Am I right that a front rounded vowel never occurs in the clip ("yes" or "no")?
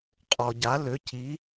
no